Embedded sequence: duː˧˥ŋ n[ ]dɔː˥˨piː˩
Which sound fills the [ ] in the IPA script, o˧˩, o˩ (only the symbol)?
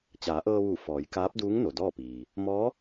o˩